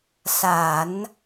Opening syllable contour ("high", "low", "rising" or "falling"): low